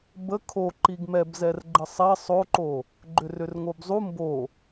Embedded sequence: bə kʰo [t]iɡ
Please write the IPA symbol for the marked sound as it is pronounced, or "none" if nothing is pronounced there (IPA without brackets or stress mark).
ǃ